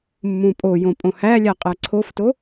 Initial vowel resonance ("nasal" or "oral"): nasal